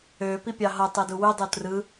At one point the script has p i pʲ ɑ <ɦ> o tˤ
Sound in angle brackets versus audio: correct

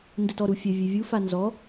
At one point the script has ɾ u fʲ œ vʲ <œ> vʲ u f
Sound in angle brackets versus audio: incorrect: ɛ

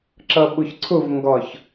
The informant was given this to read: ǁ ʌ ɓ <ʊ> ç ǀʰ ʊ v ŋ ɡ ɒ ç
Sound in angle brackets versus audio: correct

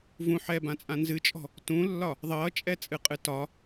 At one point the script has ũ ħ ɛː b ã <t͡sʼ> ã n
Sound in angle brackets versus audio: correct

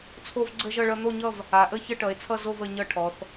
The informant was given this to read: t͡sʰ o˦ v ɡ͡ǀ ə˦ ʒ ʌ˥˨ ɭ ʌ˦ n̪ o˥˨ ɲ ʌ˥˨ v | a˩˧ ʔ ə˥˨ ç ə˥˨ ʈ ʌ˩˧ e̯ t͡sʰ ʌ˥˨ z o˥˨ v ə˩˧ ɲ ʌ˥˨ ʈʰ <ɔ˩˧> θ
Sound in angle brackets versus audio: correct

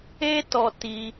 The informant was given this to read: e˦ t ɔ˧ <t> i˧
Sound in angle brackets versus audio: correct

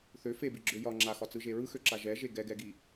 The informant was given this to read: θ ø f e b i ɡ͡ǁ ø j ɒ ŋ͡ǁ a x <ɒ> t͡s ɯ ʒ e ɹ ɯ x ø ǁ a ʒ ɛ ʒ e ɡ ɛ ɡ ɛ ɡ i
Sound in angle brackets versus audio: correct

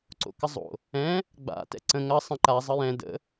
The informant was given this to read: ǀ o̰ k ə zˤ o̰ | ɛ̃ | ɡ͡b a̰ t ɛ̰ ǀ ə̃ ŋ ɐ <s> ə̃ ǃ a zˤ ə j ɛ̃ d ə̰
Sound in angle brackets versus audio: incorrect: sˤ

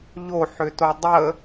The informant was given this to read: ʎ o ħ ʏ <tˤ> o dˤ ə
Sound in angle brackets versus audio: incorrect: t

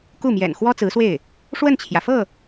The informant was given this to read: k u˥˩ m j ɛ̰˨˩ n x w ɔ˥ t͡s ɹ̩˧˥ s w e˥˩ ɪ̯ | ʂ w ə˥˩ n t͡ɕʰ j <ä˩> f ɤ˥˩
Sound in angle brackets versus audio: correct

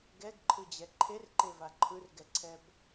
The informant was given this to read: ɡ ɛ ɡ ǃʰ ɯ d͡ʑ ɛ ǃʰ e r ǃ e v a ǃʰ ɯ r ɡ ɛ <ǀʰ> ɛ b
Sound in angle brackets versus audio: correct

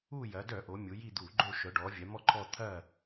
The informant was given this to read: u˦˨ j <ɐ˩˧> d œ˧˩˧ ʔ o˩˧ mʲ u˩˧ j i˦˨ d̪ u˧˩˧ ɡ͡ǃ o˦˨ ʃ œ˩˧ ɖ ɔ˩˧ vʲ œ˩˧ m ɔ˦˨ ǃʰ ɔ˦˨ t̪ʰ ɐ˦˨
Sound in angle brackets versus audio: correct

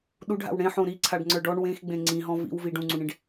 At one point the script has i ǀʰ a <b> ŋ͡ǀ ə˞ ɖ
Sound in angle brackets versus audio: incorrect: ɖ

